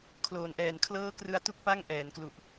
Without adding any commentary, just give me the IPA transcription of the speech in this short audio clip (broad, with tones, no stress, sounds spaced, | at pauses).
kʰ l oː˨˩ n ʔ ɛː˨˩ n kʰ l ɤː˦˥ k r ɯ˧ a̯ t u˦˥ k̚ p a˥˩ ŋ ʔ ɛː˩˦ n k l u˨˩ ʔ